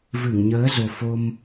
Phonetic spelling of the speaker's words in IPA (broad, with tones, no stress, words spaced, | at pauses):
vɨ˧˩ŋɲəː˨˦zo˨˩ fo˧m